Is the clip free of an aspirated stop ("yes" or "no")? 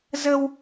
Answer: yes